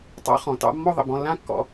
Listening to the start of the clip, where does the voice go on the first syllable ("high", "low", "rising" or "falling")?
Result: high